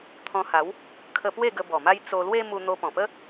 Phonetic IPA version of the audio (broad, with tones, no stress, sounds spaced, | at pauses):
t̪ʰ ɔ̃˧ h a˨˦ w | kʰ ə˧ p w e˥˧ ɡ ə˧ b ɔ˨˩ m a˦ j t͡s o˧ l w e˦ m u˧ n̪ o˧ p ɔ̃˨˩ p ə˦